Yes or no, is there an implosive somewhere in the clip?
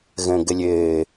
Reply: no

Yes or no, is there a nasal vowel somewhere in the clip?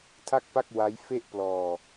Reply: no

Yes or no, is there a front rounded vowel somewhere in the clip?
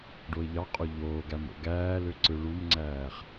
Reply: yes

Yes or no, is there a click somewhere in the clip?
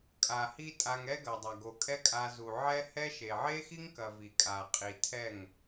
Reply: no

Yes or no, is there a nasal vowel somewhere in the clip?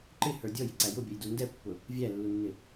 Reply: no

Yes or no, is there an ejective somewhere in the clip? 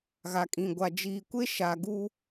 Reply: yes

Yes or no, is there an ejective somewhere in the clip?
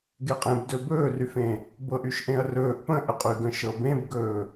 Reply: yes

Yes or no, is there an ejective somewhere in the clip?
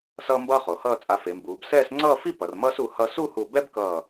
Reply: yes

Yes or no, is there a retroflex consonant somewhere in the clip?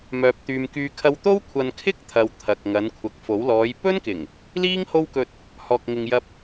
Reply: no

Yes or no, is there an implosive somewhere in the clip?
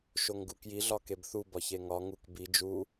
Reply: no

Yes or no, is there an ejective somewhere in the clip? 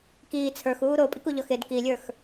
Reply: yes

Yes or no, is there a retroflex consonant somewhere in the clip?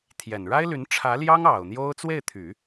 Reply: yes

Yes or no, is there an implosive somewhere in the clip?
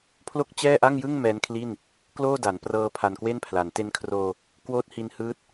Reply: no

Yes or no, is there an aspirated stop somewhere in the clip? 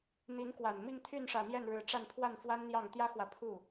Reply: yes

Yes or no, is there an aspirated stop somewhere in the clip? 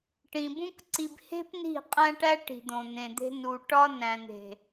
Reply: no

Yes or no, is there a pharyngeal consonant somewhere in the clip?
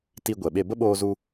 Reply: no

